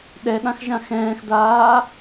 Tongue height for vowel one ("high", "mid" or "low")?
mid